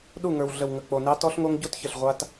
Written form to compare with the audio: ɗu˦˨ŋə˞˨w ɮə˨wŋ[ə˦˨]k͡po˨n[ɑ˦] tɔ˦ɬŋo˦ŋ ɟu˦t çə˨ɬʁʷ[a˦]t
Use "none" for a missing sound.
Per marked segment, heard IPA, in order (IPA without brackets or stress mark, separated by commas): ə˨, ɑ˦, a˦